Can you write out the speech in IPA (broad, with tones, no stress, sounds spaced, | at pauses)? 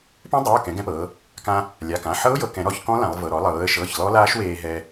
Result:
p ɛ̃˦˥ dˤ e˩˧˩ ʊ̯ k ɛ̃˩˧ ɡ ɛ̃˧ p ɤː˩˧ | k ã˧ | lʲ a˩˧˩ k ã˩˧˩ ħ ɤ˦˥ ʊ̯ j ɤ˩˧ k ɛ̃˩˧ ɾ ɔ˧ ç k ɔ̃˦˥ l ã˩˧ lˠ v ɤ˩˧˩ ɾ ɔ˩˧ lˠ ɤː˩˧ ə̯ ʃ ɤː˩˧˩ ç l ɔ˦˥ l aː˦˥ ʃ w eː˧ ɦ ɛ˧